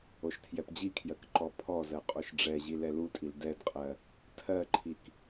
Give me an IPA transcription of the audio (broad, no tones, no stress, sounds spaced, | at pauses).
o ʃ tʰ j ɛ p d͡ʑ i kʰ j ɜ k ǃ ɔ pʰ ɔ z ɜ qʼ o ʃ ɖ͡ʐ ɛ ʑ i l ɛ l u tʼ i l d ɛ d qʼ ɜ | tʰ ɜ ǃʰ i k